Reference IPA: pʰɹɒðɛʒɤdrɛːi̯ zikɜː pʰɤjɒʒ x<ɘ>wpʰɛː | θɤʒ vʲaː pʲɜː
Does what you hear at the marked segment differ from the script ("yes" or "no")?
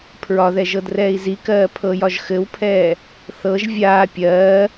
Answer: no